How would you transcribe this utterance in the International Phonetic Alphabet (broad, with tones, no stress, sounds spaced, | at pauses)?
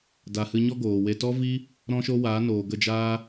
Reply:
d a˨ h ɨ˧ ɲ ɔ˦ ɡ oː˨ w e˧ t ɔ˦ v i˦ | ɾ ɔ̃˦ ʃ o˦ w a˨˦ n oː˨ ɡ ə˦˨ d͡ʒ aː˦